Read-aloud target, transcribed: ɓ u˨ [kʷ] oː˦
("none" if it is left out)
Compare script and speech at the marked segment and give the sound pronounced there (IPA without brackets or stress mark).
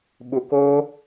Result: k